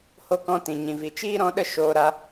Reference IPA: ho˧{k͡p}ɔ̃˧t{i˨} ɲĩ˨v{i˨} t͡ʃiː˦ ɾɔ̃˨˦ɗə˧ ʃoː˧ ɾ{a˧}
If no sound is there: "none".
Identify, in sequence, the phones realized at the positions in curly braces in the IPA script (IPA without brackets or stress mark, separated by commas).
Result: k, ĩ˨, i˨, a˧